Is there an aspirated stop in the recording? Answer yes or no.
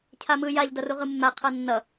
yes